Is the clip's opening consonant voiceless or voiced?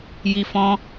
voiced